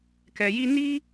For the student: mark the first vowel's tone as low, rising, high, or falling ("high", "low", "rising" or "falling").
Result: low